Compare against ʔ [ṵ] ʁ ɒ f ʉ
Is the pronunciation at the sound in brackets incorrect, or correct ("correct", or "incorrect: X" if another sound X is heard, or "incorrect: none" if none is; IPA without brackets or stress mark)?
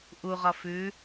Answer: incorrect: u